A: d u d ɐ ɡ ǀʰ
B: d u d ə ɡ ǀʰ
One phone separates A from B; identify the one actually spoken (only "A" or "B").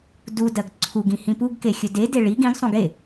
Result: A